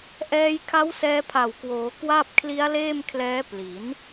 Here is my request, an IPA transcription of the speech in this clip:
ʔ ɛː˧ j kʰ a˦˥ w s ɛː˧ pʰ a˨˩ w k w oː˩˦ k w a˥˩ p̚ kʰ l i˦˥ a̯ l eː˥˩ m kʰ l ɛː˦˥ p l i˩˦ n

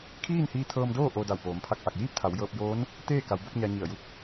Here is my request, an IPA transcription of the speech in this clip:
kʰ iː˥˨ n h iː˧ t̪ʰ ɤː˧ m d oː˥˨ ʔ o˧ d a˧˩ w p oː˩˧ m pʰ a˧˩ k̚ ʔ a˧˩ k̚ j iː˥˨ p̚ t̪ʰ a˩˧ w j ɤː˧ p̚ j oː˧˥ n | t̪ eː˥˨ k a˩˧ w b o˥˨ p̚ ɲ a˧ ɲ i˧˩ ə̯ j u˧˥ k̚

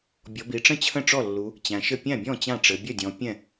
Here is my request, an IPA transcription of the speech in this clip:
bʲ ɔ˩˧ b i˩˧ ʈ͡ʂ ə̃˥˩ t͡ɕʰ ə̃˥˩ ʈ͡ʂ ɔ˥˩ lː u˩˧ | t͡ɕ æ̃˩˧ ʃ ɘ˥˩ pʲ æ̃˥˩ bʲ ɔ̃˥˩ t͡ɕ ã˥˩ ʈ͡ʂ ɘ˩˧ bʲ ə˥˩ dʲ ɔ̃˩˧ pʲ ɛ̃˥˩

